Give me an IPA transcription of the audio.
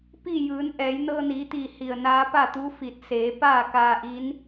pi˥˨ jɯː˩˧nʔɛː˩˧j nɤː˧niː˩˧t̪iː˧˩ hi˧˩ə̯naː˧˥ pa˥˨t̪u˧˥fi˧˩t̚ seː˩˧ paː˥˨kaː˧ʔi˧˥n

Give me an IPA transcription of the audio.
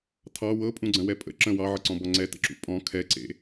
tʰɑ wɤpʼũɡ͡ǀə̃wɛ pʼə̰ ǁə̃ wɑʕəǀɔ̃bɔ ŋ͡ǀɛtə̰ǁṵ pʼɔ̃ kʰɛǀḛ

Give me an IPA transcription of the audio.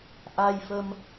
ʔa˧jfə˧m

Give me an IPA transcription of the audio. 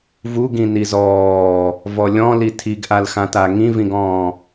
vuɡĩ nizɔː | vɔlʲɔ̃li tʰiɡʔalxãta ŋĩvĩɡɔ̃ː

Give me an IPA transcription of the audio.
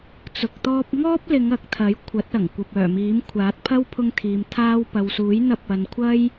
t͡sʊ˨k̚t̪ɔː˧p̚ŋɔː˥p̚lɪ˨˧ŋ ɐ˨˥k̚t̪ʰɐ˨˥j kʷʰɐ˨˥t̚ɐ˨˩ŋ kʷɐ˨p̚œː˨˩miː˨˥m kʷʰaː˨˥t̚pʰɐ˥wpʰʊ˧ŋt̪ʰiː˨m t̪ʰaː˧w pɐ˨wsuː˨˥jn̪ɐ˧p̚ ɐ˨n kʷʰɐ˥j

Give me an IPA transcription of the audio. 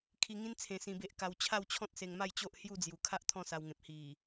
kʰi˧ŋĩ˦n t͡sʰẽ˨˩ sĩ˧be˦ʔ ka˧w t͡ɕʰa˥˧wt͡ɕʰɔ̃˦t̚se˧ŋma˥˧j t͡ɕo˦ʔhju˥˧d͡zju˨˩ kʰa˦ʔ t̪ʰɔ̃˥˧sa˧wŋẽ˨p̚ hi˨˩

